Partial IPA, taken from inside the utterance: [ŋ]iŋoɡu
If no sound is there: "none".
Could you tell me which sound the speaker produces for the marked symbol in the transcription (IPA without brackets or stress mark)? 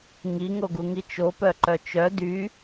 ŋ